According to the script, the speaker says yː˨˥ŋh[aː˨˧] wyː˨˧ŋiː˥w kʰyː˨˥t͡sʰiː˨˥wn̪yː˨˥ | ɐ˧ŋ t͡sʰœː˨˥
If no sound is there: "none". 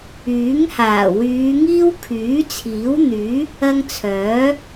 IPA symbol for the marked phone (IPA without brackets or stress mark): aː˨˩